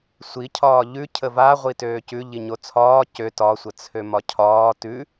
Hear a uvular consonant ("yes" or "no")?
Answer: yes